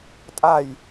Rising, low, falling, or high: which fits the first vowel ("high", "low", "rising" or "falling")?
falling